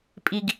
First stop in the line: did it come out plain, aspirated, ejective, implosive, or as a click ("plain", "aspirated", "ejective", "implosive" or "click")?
ejective